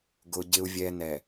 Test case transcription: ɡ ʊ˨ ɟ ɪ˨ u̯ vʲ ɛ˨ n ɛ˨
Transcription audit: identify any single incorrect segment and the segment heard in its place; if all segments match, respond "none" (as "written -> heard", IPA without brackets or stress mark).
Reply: none